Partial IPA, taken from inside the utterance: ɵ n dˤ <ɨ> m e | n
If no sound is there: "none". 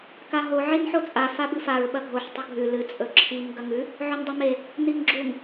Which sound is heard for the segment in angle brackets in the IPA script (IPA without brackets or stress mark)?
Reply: ɨ